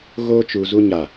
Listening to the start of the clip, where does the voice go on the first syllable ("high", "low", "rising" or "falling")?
high